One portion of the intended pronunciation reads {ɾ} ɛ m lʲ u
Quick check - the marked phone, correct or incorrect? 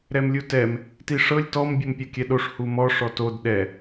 correct